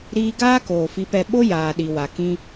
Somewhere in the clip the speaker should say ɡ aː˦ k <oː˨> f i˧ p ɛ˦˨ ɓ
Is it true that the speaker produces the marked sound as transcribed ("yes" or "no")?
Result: yes